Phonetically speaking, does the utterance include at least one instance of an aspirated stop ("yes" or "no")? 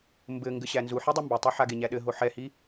no